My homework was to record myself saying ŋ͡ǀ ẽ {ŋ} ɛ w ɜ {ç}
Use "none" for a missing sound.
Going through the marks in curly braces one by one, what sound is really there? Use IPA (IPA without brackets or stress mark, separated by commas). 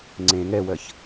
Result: ŋ, ç